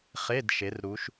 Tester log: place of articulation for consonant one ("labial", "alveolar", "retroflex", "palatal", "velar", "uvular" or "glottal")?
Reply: uvular